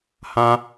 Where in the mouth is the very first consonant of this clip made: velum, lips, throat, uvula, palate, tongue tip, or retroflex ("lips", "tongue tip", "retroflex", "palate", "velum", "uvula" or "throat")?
throat